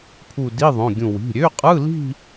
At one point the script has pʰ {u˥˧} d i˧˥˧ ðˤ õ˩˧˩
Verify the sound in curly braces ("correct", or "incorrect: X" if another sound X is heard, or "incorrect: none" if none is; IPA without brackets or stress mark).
correct